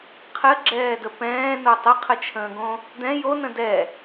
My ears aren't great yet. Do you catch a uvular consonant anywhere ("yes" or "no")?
yes